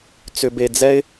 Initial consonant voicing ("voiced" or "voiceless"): voiceless